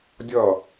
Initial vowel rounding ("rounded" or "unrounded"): unrounded